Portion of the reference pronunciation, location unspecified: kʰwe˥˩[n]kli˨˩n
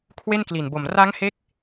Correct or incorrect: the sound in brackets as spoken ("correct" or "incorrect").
correct